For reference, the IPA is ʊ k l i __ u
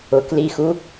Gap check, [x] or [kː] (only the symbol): x